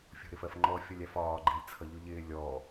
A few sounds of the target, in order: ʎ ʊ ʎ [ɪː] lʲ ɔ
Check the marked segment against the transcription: correct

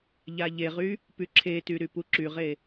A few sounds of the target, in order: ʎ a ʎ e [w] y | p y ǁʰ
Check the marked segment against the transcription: incorrect: ʁ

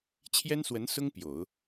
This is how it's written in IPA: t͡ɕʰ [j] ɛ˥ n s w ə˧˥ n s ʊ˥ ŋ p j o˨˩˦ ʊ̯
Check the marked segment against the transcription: correct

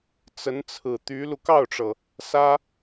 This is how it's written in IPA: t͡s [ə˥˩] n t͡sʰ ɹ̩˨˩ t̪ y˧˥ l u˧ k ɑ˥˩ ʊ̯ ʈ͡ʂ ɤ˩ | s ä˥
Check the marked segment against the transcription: incorrect: ə˧˥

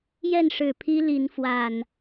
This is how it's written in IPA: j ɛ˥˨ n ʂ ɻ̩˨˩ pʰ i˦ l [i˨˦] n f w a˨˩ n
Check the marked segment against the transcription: correct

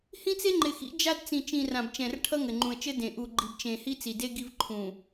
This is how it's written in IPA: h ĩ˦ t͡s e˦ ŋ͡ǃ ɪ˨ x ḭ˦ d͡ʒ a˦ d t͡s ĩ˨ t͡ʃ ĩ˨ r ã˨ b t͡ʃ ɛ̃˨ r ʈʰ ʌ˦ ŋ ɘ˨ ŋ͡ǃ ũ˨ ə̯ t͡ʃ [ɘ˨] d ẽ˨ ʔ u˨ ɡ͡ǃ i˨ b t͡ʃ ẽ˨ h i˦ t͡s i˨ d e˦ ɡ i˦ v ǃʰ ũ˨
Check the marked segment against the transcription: incorrect: ɘ˦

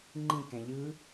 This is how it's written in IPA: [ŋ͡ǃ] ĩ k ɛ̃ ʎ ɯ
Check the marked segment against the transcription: correct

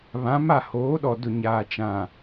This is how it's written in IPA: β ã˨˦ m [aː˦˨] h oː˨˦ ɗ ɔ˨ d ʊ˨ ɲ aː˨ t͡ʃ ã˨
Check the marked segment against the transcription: incorrect: a˦˨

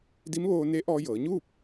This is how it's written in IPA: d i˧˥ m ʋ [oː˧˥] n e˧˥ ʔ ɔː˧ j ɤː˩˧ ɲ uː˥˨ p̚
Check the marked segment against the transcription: incorrect: oː˧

